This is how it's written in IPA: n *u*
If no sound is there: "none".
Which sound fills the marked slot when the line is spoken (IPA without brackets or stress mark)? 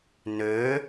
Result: ø